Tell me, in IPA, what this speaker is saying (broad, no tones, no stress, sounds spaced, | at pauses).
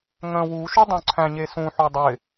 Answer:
ŋ ə̃ w u ʃ u dˤ õ ǀʰ æ̃ ɲ e s ũ ħ o dˤ ɪ